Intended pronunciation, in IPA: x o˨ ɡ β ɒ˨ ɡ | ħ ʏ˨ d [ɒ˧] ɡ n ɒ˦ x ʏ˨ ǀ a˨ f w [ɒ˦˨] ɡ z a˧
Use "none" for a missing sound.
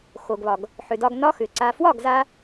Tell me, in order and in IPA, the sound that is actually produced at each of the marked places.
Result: ɒ˧, ɒ˦˨

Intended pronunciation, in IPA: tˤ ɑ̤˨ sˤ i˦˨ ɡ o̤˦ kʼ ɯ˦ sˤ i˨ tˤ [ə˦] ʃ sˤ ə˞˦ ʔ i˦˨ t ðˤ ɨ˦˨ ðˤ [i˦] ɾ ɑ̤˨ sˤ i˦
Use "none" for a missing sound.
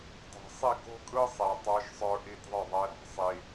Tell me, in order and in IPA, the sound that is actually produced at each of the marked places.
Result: ə˞˦, e˦

